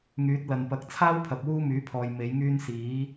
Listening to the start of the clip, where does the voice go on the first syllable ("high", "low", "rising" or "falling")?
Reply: rising